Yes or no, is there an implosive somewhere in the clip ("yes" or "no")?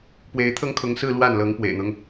no